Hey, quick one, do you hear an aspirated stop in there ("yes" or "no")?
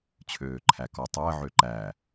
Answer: yes